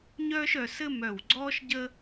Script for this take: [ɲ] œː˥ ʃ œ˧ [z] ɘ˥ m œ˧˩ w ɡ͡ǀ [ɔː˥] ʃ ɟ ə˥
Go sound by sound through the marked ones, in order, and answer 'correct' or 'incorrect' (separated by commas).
correct, incorrect, correct